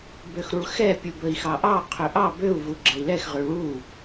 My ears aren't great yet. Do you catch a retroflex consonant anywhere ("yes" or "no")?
yes